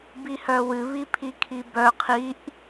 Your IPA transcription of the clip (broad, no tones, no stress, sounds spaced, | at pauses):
b i h œ w ɨ β i pʰ i kʰ i b œ qʰ i ʔ